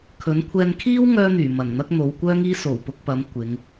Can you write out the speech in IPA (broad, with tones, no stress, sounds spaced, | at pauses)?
kʰ ɵ˨˥ n kʷʰ ɛː˧ n kʰ iː˥ w ŋ œː˥ n̪ yː˨˩ m ɐ˨˩ n n̪ ɐ˥ k̚ n̪ o˨˥ w kʷ œː˥ ŋ iː˥ s o˨˩ w p ʊ˧ k̚ p ɐ˨˧ m kʷ ɪ˨˧ ŋ